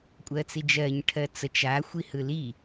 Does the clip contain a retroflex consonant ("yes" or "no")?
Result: yes